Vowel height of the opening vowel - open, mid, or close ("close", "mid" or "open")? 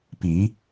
close